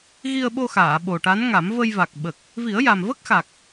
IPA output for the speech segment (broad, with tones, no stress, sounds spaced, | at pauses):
ɣ i˧ ə̯ ɓ o˧ x aː˨˩˨ ɓ o˨˩ ʈ a˧˥ n ŋ a˨˩˦ m v ə˧ j v a˨˩ k̚ ɓ ə˨˩ k̚ | v i˨˩˦ ə̯ j a˨˩ m v ə˦˥ k̚ x a˨˩ k̚